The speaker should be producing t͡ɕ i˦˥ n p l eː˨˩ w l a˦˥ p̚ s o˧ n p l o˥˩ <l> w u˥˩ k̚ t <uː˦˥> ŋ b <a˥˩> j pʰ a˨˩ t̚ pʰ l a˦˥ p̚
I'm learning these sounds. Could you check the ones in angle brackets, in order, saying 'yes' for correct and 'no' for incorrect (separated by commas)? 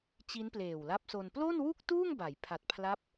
no, no, no